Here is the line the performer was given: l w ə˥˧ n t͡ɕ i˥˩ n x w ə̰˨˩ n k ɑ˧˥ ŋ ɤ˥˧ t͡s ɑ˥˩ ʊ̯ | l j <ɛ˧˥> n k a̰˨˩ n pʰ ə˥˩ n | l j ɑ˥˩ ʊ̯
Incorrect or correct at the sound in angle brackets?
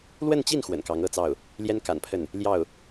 incorrect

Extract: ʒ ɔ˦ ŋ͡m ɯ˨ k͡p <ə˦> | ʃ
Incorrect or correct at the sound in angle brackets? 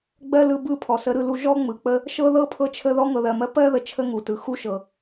correct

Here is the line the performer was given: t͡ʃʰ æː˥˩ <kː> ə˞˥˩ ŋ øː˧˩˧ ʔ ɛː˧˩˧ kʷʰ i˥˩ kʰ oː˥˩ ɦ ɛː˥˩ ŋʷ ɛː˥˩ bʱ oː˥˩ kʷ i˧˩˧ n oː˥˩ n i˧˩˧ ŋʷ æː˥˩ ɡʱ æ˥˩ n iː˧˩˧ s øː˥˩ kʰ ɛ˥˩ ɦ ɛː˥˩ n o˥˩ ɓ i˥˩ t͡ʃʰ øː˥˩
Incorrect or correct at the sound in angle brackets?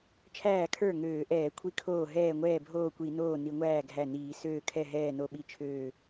incorrect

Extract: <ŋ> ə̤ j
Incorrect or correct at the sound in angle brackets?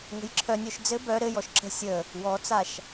correct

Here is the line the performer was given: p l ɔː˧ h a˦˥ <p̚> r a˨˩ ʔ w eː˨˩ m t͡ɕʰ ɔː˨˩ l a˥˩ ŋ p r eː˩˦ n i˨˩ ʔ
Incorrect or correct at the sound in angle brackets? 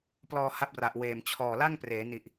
correct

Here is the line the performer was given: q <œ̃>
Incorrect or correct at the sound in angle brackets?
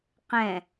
incorrect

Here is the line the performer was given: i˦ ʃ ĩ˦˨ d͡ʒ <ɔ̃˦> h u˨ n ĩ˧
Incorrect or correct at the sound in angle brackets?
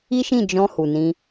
incorrect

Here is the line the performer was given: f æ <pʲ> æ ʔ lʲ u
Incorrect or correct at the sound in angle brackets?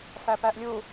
incorrect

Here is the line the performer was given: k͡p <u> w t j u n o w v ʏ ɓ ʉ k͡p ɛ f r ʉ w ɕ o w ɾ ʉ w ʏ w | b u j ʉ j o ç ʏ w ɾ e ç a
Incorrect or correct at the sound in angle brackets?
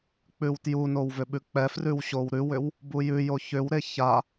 incorrect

